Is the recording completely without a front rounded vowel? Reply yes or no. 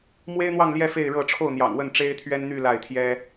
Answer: no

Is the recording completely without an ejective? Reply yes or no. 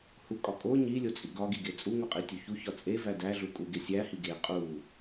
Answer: no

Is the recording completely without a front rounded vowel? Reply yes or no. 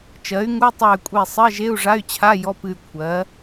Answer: no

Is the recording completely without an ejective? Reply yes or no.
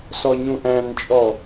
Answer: no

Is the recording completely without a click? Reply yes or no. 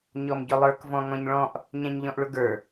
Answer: yes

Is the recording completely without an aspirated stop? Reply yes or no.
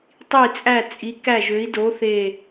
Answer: yes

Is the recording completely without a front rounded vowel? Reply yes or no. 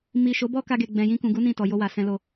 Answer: yes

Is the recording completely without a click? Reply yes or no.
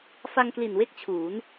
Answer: yes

